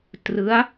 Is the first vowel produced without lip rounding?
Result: yes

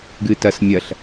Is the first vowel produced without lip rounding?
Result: yes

